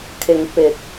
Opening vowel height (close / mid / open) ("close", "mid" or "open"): close